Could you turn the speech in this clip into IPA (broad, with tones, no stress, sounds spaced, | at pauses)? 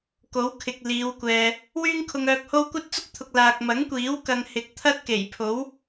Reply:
k o˨˥ w kʰ ɪ˨ k̚ l iː˨˧ w kʷ ɛː˨ | w yː˥ ŋ kʰ ʊ˧ ŋ œː˧ k̚ h o˥ w kʷ ɐ˥ t̚ t͡s ʊ˥ k̚ t̪ʰ ʊ˨ k̚ l aː˨ k̚ m ɐ˨˥ ŋ kʷ iː˨˥ w k ɐ˧ ŋ h ɪ˨˥ k̚ t̪ʰ ɐ˥ t̚ k e˨˩ j pʰ o˨˥ w